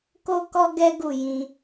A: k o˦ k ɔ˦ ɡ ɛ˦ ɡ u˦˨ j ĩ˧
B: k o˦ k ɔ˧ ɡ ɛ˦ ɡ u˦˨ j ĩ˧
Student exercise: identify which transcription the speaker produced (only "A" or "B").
A